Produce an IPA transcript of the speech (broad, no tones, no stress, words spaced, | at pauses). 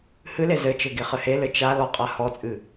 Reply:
hɨle zɘt͡ʃɘ ɡeχɘhelɘ t͡ʃa lɔqʼahɔt͡sʼɨ